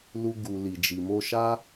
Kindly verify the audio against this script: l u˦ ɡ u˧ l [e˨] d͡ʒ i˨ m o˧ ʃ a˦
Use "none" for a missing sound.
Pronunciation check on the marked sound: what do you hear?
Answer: i˨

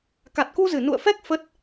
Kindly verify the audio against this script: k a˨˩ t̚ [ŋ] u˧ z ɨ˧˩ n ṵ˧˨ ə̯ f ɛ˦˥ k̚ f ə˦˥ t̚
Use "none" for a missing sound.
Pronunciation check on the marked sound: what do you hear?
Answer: k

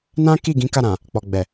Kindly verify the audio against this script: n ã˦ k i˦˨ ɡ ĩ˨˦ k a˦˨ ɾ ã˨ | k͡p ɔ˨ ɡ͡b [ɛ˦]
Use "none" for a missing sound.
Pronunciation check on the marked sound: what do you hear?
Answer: ɛ˨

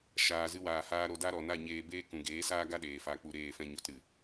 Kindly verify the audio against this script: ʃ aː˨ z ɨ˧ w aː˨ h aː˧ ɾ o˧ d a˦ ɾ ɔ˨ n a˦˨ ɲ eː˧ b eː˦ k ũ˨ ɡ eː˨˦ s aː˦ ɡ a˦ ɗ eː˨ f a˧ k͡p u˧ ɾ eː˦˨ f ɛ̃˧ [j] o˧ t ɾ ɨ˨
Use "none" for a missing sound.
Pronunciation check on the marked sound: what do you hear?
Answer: ɲ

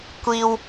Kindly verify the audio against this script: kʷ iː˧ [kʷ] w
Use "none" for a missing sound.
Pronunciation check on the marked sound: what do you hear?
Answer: none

